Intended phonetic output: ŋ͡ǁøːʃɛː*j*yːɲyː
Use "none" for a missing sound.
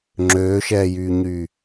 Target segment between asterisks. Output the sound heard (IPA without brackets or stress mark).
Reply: j